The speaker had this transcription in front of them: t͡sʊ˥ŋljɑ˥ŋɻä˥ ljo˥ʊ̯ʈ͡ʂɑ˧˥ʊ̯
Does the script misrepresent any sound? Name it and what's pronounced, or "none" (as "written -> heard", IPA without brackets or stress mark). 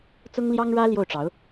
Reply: o˥ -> o˥˩